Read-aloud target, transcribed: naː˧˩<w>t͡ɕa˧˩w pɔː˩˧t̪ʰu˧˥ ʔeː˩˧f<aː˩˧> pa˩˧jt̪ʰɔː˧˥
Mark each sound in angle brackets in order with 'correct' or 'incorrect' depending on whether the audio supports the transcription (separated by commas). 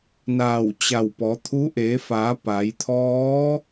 correct, correct